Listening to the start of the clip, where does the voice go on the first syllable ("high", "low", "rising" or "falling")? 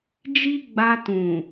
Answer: high